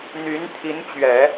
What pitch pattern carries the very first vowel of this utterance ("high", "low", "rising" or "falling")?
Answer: rising